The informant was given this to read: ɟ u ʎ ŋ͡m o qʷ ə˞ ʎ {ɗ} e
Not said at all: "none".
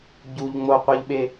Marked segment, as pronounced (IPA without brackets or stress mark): ɓ